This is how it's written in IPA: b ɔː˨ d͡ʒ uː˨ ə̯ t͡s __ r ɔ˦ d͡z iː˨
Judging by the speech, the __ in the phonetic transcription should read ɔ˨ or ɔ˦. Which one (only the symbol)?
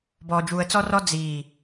ɔ˦